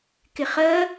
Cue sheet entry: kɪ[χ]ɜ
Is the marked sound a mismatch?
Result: no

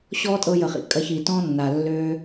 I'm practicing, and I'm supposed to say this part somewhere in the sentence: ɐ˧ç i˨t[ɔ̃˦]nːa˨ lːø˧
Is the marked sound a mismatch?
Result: no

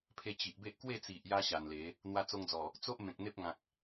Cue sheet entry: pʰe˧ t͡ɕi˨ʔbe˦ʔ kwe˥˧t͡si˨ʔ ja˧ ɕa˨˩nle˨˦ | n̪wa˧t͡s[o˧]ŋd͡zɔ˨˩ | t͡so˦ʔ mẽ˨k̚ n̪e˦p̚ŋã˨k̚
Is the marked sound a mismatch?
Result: no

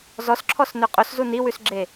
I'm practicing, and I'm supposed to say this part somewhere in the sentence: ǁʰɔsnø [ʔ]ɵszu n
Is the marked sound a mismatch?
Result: yes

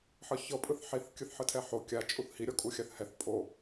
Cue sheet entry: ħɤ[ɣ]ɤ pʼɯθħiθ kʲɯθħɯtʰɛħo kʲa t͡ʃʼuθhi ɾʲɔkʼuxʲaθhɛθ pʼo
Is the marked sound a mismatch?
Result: yes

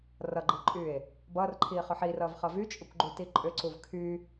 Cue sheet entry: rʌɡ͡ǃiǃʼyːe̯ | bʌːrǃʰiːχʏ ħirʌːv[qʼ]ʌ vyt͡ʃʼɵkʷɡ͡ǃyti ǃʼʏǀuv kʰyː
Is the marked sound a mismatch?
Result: yes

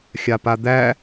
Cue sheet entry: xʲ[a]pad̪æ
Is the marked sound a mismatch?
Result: no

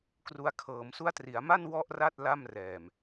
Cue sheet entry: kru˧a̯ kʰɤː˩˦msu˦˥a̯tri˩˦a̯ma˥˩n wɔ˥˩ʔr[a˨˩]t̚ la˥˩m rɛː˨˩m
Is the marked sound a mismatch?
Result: yes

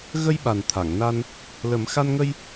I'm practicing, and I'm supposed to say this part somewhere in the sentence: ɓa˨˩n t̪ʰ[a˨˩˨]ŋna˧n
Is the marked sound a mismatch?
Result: no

